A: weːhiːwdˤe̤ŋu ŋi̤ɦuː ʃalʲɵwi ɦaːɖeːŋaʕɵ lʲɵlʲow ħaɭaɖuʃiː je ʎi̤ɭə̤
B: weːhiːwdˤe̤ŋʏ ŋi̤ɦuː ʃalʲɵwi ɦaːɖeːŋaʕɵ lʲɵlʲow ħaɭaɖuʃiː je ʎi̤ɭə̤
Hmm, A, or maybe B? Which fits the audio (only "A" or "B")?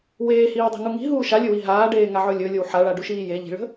A